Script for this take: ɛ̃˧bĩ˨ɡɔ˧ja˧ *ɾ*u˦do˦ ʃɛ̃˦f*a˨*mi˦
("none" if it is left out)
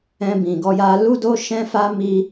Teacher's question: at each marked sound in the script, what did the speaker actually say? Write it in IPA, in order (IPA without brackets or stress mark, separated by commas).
l, a˦